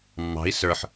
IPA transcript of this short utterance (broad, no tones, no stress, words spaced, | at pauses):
mːɑ̤i̯ sə˞ħ